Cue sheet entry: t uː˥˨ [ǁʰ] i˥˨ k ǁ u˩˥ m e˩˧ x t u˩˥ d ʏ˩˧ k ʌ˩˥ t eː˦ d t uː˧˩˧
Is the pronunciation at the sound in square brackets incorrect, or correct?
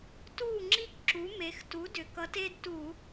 incorrect